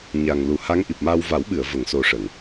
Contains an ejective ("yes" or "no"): no